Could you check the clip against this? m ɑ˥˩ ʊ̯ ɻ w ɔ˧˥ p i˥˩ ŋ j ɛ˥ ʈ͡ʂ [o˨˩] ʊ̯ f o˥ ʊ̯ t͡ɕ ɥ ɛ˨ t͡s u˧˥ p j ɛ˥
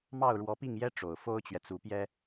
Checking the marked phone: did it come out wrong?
no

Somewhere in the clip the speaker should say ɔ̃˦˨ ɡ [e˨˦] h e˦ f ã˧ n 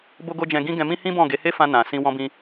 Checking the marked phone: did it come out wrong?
no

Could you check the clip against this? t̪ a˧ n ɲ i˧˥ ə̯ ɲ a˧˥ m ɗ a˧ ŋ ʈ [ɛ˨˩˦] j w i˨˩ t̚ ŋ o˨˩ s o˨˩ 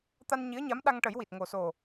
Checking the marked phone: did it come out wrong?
yes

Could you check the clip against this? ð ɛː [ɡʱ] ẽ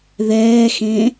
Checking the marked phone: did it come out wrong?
yes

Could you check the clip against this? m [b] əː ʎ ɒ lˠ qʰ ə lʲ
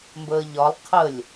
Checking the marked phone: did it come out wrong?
no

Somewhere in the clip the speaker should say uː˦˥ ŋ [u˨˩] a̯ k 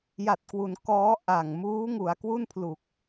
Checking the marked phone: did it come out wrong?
yes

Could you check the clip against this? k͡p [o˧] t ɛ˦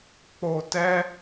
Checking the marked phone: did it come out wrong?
no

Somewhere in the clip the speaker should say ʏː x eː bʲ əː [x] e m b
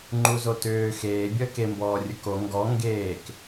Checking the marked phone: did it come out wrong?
yes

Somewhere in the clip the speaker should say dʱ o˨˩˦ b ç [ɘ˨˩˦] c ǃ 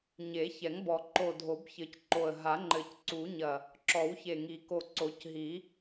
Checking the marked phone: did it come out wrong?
no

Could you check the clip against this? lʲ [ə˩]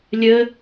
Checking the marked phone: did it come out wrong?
yes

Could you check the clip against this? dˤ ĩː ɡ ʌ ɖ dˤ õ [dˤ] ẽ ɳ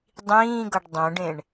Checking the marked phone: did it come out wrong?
yes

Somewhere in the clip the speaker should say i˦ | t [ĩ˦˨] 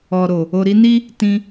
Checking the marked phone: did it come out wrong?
yes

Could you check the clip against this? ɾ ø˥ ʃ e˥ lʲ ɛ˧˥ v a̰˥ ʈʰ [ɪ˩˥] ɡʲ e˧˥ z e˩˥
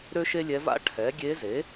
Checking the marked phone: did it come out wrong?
yes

